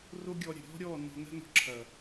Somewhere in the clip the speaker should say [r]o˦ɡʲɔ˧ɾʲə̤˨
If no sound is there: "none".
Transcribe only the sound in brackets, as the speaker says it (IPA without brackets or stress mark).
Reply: r